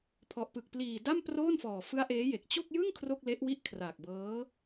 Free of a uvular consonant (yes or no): yes